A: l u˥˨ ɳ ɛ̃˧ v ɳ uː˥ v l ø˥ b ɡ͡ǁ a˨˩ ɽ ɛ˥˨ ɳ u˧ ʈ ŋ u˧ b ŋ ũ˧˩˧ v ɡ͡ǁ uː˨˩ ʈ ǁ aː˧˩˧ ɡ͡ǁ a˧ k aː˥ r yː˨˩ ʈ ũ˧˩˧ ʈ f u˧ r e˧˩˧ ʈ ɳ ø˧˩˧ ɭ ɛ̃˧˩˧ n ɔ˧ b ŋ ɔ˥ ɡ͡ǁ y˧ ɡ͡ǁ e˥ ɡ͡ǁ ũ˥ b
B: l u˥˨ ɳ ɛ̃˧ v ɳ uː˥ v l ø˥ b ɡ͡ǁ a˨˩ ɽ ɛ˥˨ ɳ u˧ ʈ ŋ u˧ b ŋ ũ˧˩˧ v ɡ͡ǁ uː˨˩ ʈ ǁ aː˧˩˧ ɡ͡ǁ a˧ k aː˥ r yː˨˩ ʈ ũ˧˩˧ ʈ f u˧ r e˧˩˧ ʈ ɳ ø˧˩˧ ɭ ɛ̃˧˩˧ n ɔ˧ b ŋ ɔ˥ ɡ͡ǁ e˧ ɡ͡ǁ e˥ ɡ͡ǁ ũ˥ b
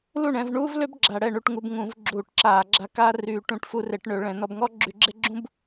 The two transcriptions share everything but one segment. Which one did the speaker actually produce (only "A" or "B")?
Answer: A